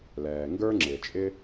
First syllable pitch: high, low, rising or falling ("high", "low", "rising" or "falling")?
low